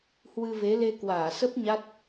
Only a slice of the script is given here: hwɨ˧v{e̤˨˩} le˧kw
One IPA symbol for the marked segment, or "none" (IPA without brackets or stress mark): e˨˦